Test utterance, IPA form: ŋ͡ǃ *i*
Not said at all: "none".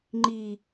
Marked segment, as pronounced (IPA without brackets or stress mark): i